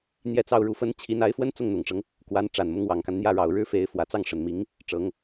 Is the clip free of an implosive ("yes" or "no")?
yes